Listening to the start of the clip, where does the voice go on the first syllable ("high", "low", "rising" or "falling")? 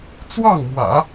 falling